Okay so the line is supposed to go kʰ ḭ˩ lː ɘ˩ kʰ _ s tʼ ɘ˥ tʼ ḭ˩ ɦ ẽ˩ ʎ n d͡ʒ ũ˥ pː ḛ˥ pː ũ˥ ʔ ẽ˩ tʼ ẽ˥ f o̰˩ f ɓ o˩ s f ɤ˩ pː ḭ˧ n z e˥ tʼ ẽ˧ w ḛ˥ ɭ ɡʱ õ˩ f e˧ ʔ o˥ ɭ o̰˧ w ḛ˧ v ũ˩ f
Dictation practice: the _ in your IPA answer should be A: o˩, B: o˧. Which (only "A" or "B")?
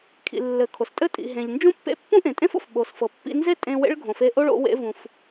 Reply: A